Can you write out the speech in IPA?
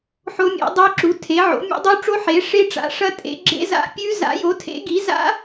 ħo˦˥mʲḛ˨˥ dˤɨ˦˥ǁu˨˥ tʰe˨˥ʕo̰˨˥ mʲo̰˦˥dˤu˦˥ʈ͡ʂo˦˥ ħe˨˥ ʂe˦˥ʈ͡ʂa̰˨˥ʂɐ˦˥ tʼḛ˨˥ ɡ͡ǁḛ˦˥za̰˦˥pʲʉ˦˥ za̰˨˥jo˨˥tʰḛ˨˥ɡi˨˥ za̰˦˥

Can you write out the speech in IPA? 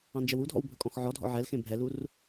ɑ̃nd͡ʒɛwudʱɔ̰w bʱɵkʼɔ̃xʕɔdʱɔ̰ ʕɛlxẽ bʱɛlur

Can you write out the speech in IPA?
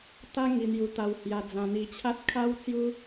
t̪a˦ŋi˧n̪ju˧t̪a˧w hja˧d͡zã˧n̪i˧t͡ɕʰa˦t̚ kʰa˦wt͡sju˦

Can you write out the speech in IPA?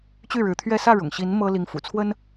t͡ɕy˥˩ɻɻ̩˧˥t̪ʰɥɛ˥˧ sä˥˩ɻʊ̰˨˩ŋɕi˧˥n mɤ˥ li˧˥ŋfṵ˨˩t͡sʰwə˥n

